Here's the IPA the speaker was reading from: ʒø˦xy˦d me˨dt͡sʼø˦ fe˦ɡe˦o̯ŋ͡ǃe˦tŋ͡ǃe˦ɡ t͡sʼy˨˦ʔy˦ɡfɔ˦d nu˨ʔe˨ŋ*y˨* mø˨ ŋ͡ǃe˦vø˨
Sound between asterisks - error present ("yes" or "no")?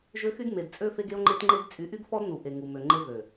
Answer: yes